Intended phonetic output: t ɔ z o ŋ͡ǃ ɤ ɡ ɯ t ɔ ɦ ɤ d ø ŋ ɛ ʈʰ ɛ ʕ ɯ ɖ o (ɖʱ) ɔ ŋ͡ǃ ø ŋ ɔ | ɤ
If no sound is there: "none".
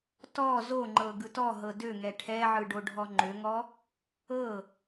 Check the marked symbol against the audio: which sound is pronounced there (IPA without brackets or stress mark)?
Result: ɖʱ